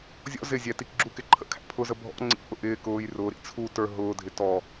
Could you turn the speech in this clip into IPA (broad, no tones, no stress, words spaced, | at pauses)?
zʲɔ̰ zɪzʲæ tikɡ͡ǁukɪ ǃʰə̰kʰæ̰pʰʊzə bʱɔ̰ ŋ͡ǀḭʔʊ ʔɪː kʊːj rʊːɾḭ t͡sʰu tə˞ ɦʊːdʱɪ tɔ